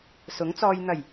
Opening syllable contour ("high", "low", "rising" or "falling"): rising